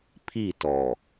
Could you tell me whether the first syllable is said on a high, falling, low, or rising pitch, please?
falling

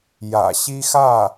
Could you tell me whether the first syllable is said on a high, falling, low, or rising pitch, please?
low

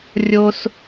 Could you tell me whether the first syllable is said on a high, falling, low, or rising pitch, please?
high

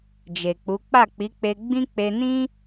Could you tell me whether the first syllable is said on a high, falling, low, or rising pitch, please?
low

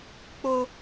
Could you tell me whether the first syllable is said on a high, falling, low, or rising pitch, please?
low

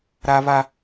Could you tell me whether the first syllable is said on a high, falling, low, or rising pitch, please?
high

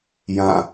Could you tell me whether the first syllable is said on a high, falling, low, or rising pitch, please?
falling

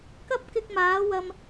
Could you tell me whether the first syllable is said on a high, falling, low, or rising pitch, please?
high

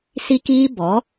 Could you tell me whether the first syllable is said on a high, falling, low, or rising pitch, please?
high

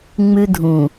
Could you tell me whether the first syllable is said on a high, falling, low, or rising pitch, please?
high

